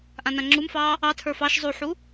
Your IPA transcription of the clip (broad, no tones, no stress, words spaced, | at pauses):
ʔãnãŋ͡ǁumfɑː | ɑtʰə˞ fɑʃ zˤuħu